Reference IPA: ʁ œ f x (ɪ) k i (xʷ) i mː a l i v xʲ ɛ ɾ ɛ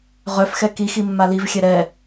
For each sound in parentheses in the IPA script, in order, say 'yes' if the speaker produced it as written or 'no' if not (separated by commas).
no, no